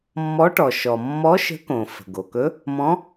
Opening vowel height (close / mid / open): mid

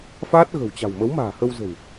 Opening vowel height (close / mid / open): open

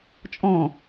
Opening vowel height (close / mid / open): mid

